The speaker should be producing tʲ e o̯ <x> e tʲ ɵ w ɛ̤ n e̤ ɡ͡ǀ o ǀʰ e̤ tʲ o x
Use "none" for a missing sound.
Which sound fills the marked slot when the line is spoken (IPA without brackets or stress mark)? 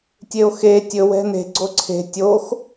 x